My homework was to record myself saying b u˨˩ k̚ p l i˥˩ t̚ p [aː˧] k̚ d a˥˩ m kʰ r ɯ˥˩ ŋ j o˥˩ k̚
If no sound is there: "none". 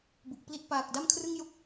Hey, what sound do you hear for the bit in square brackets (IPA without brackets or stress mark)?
aː˨˩